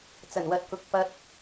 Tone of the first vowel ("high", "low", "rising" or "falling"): low